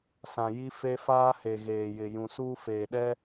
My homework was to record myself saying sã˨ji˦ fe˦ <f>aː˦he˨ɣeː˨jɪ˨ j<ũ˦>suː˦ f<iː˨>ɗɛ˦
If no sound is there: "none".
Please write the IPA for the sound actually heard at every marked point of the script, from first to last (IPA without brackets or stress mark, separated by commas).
f, ũ˨, eː˨